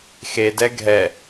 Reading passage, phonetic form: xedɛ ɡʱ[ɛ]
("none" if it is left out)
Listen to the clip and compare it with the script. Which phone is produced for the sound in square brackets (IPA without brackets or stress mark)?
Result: ɛ